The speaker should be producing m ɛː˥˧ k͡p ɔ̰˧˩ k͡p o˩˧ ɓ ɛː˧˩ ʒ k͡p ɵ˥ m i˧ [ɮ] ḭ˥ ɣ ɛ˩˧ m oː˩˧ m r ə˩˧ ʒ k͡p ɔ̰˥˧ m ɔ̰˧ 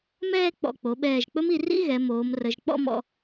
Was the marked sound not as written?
yes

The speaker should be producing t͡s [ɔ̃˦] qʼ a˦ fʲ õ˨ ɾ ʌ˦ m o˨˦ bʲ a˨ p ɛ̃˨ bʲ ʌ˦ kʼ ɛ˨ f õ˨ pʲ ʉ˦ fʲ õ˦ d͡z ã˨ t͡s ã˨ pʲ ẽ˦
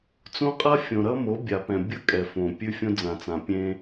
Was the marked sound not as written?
yes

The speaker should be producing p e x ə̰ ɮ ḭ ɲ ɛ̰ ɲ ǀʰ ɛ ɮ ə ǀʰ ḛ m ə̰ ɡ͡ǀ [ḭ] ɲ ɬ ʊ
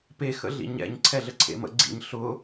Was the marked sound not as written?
no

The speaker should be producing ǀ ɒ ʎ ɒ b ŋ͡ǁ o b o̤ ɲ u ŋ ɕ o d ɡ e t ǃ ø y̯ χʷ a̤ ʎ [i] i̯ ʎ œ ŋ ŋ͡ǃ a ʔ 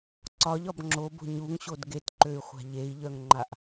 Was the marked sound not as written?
yes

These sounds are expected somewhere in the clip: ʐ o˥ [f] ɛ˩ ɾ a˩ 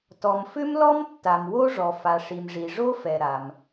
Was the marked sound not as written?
no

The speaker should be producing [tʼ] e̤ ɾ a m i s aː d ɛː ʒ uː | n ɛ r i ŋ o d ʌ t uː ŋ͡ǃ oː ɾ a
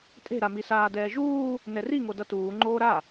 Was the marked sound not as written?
no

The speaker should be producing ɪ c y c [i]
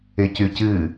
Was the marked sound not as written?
yes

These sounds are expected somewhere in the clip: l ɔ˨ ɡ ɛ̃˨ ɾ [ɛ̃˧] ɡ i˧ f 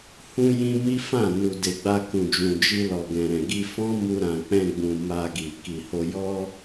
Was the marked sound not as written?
yes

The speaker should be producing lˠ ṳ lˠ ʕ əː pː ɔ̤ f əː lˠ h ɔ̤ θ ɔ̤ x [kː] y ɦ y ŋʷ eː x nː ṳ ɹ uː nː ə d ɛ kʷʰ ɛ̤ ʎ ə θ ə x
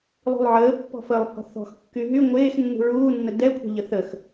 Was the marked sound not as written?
no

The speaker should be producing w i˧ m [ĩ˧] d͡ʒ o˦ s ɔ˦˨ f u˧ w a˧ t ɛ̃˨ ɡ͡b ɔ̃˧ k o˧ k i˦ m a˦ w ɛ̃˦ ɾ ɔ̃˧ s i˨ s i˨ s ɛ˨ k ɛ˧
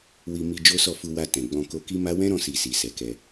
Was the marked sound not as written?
yes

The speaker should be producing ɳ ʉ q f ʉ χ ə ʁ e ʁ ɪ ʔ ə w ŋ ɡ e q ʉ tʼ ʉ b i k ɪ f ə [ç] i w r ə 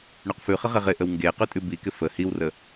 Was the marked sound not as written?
yes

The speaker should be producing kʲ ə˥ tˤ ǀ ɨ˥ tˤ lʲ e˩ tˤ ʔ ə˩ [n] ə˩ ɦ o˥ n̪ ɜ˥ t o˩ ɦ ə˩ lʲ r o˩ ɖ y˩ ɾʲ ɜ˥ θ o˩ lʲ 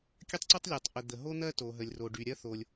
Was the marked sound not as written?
yes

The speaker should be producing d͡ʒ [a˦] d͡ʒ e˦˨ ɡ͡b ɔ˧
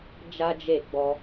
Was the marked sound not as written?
no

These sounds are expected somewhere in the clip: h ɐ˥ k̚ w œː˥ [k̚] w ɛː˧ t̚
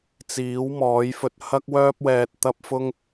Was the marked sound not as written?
yes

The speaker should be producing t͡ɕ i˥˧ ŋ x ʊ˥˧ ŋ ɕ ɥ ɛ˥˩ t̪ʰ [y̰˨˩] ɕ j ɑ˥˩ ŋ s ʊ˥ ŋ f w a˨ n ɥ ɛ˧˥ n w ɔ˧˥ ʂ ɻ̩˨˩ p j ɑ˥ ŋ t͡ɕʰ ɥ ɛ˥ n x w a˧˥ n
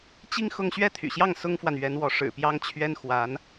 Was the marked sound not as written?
no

